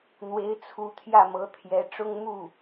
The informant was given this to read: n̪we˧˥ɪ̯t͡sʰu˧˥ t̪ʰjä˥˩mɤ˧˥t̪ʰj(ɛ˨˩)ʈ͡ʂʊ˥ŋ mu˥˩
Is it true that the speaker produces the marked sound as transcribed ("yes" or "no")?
no